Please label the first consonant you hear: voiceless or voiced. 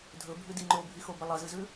voiced